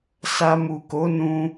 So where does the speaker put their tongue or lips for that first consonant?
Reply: tongue tip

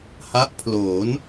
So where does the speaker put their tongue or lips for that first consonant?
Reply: throat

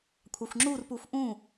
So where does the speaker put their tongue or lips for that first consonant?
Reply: velum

